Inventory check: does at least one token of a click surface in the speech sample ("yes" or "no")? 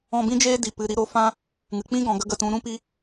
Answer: no